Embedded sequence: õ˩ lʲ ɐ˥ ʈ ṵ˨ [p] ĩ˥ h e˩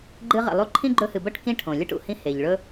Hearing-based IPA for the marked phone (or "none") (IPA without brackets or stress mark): h